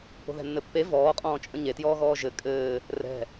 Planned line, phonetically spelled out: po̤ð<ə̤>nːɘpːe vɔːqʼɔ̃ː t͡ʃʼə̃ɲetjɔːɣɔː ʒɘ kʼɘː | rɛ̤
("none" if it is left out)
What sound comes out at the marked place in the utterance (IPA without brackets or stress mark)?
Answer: ɛ̤